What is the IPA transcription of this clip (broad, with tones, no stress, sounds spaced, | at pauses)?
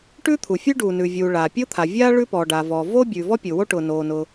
ʈ ʉ˥ t̪ʰ u˩ fʲ ʉ˥ ɖ uː˩ n ʉ˩ vʲ uː˩ ɭ aː˩ pʲ ʊː˥ t̪ʰ a˩ vʲ aː˥ ɭ ʉ˥ p ɔː˩ ɖ aː˩ v ɔː˩ v oː˥ bʲ ʉː˩ v ɔ˥ pʲ ʊː˩ w o˥ ʈ ʊː˩ n oː˩ n ʊ˩